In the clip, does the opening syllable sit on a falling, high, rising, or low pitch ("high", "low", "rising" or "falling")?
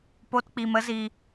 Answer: high